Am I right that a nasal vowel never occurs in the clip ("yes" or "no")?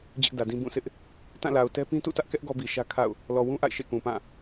no